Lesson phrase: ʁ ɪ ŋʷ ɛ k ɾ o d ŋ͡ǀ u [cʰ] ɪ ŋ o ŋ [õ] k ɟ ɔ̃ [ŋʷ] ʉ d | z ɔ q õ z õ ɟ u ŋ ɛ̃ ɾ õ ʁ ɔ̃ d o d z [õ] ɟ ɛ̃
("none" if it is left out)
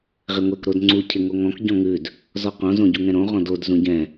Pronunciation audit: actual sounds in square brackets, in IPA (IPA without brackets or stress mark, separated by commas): cʰ, ɔ̃, ŋ, ũ